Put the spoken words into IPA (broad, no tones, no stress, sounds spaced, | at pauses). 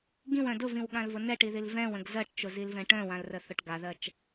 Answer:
ɡ ĩ w œ̃ d ʊ v ĩ w ɠ ã l v ʊ n ɛ ʈ i ð i l v ɛ̃ w ə̃ ɡ z ɜ ʈ t͡ʃ ʊ z i l v ɛ̃ ʈ œ̃ w ã l r ə θ ʊ ʈ ɡ a ð ɜ t͡ʃ